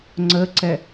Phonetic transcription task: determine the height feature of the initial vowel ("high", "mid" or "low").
mid